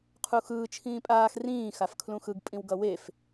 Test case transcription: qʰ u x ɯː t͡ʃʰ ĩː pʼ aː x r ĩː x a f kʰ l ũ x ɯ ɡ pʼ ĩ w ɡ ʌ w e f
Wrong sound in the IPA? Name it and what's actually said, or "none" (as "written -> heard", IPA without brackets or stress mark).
none